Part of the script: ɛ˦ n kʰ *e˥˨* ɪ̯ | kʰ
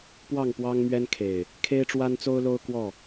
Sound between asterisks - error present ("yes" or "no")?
yes